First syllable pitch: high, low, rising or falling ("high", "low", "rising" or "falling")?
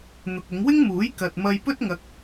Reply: low